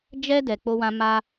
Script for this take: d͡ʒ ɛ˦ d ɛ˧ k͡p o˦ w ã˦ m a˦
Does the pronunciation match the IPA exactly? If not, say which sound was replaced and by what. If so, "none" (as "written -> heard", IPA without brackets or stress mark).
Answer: none